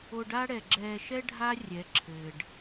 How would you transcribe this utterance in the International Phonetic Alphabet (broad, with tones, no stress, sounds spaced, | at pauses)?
o˧ ɖ a˦ ɽ ɛ˨ ɡ͡ǁ ɛː˧ ʃ ɛ˦ ɖʱ a˦ rʲ ɛ˨˦ ǁʰ ɘː˨ ɖ